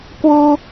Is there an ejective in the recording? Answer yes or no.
no